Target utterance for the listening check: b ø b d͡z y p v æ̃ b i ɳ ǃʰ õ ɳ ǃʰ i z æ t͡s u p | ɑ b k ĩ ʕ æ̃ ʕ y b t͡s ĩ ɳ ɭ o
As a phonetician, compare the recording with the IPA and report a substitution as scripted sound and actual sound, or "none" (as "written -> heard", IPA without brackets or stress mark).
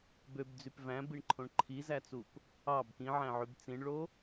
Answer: none